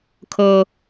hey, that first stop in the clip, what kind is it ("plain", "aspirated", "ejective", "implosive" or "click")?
aspirated